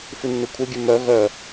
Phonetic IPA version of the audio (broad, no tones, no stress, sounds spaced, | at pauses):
f ʉ nː ʉ kʷʰ e ɡʲ ʉ m œ ɣ œ